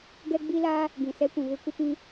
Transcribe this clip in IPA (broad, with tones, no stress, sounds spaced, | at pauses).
ɡ ɛ˦ ɡ͡b i˦ l aː˦ | ɡ ĩ˨ s ɛ˦ kʷ ũ˨ β ɪ˦ kʷ ɪ˦ p ĩ˦